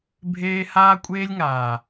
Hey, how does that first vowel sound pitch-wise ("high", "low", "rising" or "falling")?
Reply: high